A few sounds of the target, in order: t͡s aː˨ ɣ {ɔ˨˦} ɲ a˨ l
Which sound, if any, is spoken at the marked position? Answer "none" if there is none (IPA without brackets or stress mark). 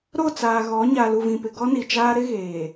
ɔ˨˦